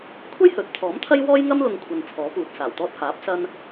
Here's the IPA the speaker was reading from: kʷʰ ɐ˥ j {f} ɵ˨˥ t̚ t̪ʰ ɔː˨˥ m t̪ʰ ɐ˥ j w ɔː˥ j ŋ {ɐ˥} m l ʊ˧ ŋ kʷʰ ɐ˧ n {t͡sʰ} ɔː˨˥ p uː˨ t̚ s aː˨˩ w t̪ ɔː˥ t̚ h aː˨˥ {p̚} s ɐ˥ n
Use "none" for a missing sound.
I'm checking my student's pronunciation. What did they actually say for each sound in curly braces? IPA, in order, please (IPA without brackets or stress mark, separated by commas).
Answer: h, ɐ˥, t͡sʰ, p̚